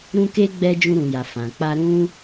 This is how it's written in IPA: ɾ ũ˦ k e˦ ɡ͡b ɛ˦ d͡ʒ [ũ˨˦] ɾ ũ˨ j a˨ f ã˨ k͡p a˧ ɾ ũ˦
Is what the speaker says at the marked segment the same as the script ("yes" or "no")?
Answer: no